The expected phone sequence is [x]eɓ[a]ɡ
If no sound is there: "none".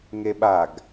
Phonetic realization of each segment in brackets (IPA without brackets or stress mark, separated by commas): ŋ, a